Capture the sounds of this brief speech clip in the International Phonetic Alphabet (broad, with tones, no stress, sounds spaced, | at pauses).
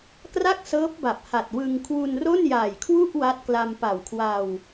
k r a˥˩ k̚ s ɤː˦˥ p̚ b a˨˩ p̚ h a˨˩ t̚ w ɯ˧ ŋ kʰ w u˧ n r o˥˩ n j aː˨˩ j kʰ w u˥˩ ʔ w a˦˥ t̚ k l a˧ m p a˨˩ w kʰ w a˧ w